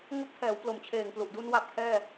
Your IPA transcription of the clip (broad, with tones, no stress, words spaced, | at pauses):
ŋo˥˩k̚ tʰɛː˩˦wplo˨˩m t͡ɕʰeː˨˩ŋplu˨˩ʔdu˧n wa˦˥p̚kʰɛː˥˩